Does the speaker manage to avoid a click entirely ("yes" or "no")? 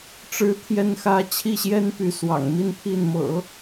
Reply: yes